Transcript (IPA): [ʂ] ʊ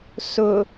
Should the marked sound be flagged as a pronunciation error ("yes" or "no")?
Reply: yes